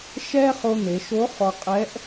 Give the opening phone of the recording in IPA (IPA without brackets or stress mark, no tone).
ʃ